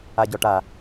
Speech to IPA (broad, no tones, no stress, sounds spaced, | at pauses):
a ɟ ɔ ʈ a